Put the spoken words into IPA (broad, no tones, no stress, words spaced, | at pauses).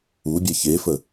ubʲɛ çefə